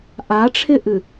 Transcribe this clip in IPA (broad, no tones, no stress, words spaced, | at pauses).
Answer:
ʔaʈ͡ʂʰɪʔɨ